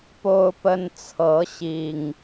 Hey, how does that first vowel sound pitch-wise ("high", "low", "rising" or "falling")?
high